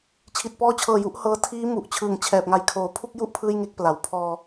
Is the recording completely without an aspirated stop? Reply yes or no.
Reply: no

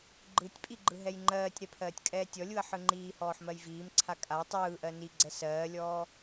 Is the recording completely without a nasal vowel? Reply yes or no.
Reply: yes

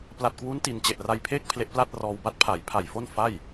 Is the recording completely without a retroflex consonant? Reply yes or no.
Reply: yes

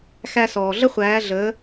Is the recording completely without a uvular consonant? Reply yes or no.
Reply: no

